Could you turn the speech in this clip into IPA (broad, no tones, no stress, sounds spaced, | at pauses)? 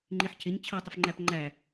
ŋ͡ǃ i ħ cʰ ɪ ɲ t͡ɕʰ ʌ tˤ ɪ f ŋ͡ǃ æ p ŋ͡ǃ æ